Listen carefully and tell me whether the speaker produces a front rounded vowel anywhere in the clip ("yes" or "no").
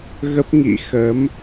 no